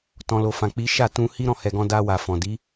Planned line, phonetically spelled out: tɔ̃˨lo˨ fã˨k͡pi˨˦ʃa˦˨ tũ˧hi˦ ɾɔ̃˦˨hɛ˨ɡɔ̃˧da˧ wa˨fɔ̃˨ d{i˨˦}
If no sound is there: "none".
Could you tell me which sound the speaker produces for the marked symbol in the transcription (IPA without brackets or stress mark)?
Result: i˨˦